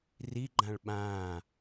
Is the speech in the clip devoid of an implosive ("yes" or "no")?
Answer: no